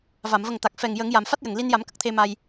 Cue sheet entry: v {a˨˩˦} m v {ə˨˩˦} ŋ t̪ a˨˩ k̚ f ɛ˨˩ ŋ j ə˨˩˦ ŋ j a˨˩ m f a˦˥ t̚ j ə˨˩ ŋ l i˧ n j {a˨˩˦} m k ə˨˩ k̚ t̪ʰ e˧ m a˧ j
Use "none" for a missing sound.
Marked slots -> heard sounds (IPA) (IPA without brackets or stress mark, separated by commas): a˨˩˨, ə˨˩, a˨˩˦